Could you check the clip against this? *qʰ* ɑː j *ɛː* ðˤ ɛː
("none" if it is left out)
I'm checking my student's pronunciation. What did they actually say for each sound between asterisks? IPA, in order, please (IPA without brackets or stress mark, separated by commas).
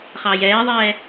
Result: χ, ɛː